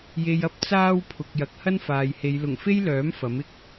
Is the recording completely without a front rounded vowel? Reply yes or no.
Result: no